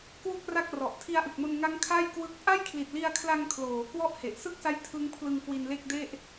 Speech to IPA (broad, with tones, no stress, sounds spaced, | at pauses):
k w u˥˩ k̚ r a˥˩ k̚ r ɔ˨˩ ʔ tʰ i˧ a̯ ʔ ɯ˨˩ k̚ m o˧ n ŋ a˦˥ ŋ kʰ a˥˩ j k w ɯ˦˥ k̚ ʔ a˥˩ j kʰ l i˨˩ t̚ l i˧ a̯ kʰ l a˧ ŋ kʰ l oː˩˦ k w ɔ˥˩ ʔ h e˨˩ ʔ s ɯ˥˩ k̚ s a˦˥ j tʰ ɯ˦˥ ŋ pʰ l ɯ˧ ŋ k w i˧ n l e˥˩ k̚ d e˥˩ ʔ